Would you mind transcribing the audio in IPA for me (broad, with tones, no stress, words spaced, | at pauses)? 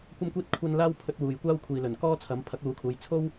kʷɐ˥mkʷiː˥t̚ kʷʰɐ˥n laː˥wpʰɵ˧t̚ wuː˨jkʷaː˥w kʷʰiː˨lɵ˨˩n kɔː˥ t͡sʰɐ˨˥mpʰɐ˨˥k̚luː˨˥kʰuː˨˧j t͡sʰo˥w